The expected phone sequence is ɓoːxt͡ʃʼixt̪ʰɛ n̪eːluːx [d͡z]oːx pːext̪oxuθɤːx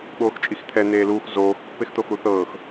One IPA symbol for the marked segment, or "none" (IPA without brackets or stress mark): z